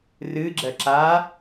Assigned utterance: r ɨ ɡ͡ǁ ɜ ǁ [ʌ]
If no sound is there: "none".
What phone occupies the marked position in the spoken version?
a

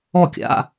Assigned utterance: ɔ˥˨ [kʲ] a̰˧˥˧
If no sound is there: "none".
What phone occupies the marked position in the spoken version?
kʲ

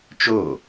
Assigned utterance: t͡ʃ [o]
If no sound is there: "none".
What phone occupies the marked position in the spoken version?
o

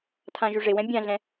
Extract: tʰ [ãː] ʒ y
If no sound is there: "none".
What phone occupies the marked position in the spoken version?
ã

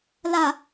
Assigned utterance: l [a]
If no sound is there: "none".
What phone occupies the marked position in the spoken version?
a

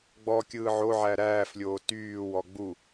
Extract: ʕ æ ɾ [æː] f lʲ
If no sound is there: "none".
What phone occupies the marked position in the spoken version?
æː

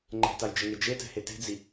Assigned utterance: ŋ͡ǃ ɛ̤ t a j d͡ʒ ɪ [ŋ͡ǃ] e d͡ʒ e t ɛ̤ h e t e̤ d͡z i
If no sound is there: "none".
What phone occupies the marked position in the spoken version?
ŋ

